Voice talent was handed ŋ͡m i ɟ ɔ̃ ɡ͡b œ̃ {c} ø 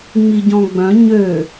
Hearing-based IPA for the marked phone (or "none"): ɲ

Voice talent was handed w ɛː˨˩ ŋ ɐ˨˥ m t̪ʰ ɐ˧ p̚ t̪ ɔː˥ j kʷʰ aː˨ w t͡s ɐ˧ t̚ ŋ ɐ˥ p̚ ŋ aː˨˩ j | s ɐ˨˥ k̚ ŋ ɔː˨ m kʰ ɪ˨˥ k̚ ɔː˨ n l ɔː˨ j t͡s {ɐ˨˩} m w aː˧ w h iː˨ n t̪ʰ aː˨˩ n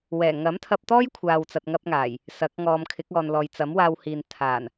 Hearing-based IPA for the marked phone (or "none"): ɐ˨˥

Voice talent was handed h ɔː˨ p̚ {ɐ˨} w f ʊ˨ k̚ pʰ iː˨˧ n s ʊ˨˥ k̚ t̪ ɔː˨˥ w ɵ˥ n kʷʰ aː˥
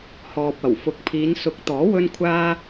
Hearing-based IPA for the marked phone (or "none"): ɐ˨˩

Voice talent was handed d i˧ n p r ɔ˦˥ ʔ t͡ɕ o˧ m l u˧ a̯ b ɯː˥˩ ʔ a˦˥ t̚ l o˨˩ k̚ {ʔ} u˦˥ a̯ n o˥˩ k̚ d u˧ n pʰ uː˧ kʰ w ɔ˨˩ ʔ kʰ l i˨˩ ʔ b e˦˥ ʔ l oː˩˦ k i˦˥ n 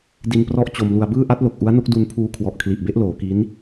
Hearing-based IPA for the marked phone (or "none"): ʔ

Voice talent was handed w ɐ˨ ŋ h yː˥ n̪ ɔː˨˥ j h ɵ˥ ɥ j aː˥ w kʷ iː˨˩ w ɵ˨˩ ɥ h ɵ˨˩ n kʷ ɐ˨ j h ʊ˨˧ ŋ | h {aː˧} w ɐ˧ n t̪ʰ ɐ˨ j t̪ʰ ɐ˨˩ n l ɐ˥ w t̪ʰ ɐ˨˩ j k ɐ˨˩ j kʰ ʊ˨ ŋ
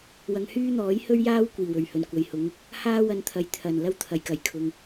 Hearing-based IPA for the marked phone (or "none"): aː˥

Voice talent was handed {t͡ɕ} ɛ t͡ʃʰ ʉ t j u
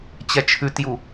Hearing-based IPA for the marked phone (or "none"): t͡ɕ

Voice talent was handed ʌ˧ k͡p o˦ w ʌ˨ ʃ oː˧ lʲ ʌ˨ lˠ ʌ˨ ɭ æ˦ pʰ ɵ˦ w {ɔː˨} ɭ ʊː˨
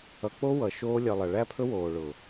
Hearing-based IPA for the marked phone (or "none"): oː˨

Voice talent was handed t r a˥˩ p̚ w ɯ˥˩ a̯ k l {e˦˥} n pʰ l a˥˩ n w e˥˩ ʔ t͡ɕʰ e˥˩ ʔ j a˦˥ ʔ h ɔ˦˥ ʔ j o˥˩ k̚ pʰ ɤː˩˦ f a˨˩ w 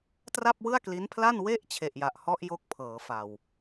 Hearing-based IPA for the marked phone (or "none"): i˦˥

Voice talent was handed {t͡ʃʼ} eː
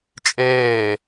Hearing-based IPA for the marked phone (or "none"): t͡ʃʼ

